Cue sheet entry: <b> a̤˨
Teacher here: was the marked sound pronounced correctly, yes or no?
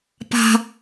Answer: no